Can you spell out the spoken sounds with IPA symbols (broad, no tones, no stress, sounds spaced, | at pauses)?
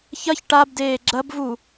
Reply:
ç ɐ ç ʈ a b d eː ɡ͡ǁ ɐ b v u